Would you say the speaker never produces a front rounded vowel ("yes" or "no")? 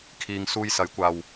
yes